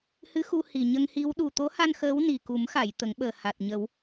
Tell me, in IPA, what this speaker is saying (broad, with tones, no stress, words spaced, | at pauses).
hɨ˧˥xu˧ hi˨˩ɲə˧ŋhi˧˥w ɗu˨˩t̪o˧˥ha˧n xəː˧˥w ni˨˩ku˨˩˦mxa˨˩˨j t̪ə˨˩˦ŋɓəː˨˩ha˨˩t̚ ɲə˨˩˦w